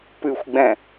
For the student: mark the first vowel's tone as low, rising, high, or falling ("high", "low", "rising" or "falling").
low